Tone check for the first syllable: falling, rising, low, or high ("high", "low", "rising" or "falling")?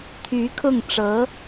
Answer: rising